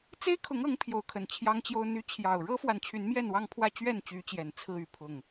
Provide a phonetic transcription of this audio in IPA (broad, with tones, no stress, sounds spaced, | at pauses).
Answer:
t͡s e˦ ɪ̯ kʰ ʊ˨˦ ŋ ɤ˨˦ ŋ pʰ j o˨˦ ʊ̯ kʰ ə˨˩ n t͡ɕʰ j ɑ˦ ŋ t͡ɕ j o˦ ʊ̯ n̪ y˦ t͡ɕʰ j ɑ˨˩ ʊ̯ ɻ ɤ˦ f w a˨ n t͡ɕʰ y˨˦ n m j ɛ˥˨ n w ɑ˥˨ ŋ pʰ w ä˥˨ t͡ɕ ɥ ɛ˥˨ n t͡ɕ y˨˦ t͡ɕ j ɛ˨˩ n t͡sʰ ɹ̩˥˨ y˥˨ pʰ ʊ˥˨ ŋ